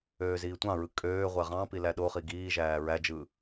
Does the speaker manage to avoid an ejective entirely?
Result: no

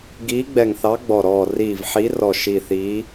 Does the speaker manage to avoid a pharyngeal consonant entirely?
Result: no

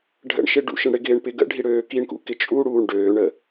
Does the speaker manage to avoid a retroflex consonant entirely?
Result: no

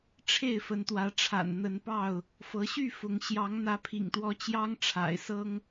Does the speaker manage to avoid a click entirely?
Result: yes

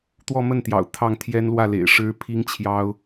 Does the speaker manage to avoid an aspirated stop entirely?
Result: no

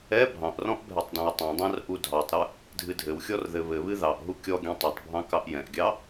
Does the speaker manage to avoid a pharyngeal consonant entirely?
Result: yes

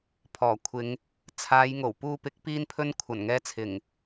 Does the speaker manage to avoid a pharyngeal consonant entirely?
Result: yes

